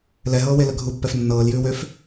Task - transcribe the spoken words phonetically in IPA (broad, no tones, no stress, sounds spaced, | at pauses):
l ɛ ɦ ɤː w e l ə ɡʱ u pː ɛ f nː ɤː l j ʉː w ø f